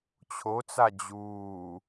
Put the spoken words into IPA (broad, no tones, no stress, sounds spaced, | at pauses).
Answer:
t͡ɕʰ o t͡s a d͡ʑ uː